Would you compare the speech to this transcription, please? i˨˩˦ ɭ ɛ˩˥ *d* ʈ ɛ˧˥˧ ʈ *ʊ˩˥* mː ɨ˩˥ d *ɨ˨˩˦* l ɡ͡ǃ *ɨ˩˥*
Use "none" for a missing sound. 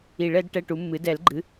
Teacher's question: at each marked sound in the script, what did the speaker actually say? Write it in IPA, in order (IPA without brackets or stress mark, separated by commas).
d, u˩˥, ɛ˨˩˦, ɨ˩˥